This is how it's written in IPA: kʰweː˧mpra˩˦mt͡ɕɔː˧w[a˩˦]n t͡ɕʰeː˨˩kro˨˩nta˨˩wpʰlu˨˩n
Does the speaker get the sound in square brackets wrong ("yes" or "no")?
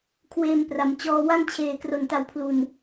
yes